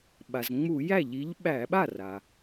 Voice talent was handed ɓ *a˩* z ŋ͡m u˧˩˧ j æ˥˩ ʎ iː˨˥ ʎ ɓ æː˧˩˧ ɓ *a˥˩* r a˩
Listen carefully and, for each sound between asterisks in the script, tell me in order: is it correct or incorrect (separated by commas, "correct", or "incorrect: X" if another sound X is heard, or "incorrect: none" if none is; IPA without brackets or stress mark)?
correct, correct